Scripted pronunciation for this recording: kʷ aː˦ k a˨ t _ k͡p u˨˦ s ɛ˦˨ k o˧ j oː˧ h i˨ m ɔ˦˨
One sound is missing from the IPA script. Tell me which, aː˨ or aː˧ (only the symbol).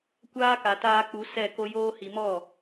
aː˧